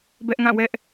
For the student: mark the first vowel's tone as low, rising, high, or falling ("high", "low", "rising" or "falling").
high